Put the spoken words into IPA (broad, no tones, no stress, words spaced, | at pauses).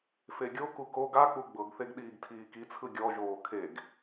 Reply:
feɡʲoku koɡ ak͡pu ɡ͡bɤɡθeɡ ɗiːɡtʰiːkit͡sʰɯ ɡʲɔʒoː kʰeɡ